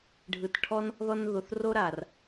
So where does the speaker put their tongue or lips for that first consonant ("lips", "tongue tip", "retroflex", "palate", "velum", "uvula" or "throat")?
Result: retroflex